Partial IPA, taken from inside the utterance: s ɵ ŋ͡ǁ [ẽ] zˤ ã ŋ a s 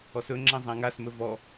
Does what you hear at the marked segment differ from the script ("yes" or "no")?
no